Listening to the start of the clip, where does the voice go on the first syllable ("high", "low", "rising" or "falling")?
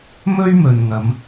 high